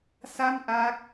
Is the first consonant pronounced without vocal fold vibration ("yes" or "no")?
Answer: yes